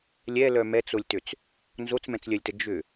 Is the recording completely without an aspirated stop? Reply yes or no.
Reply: yes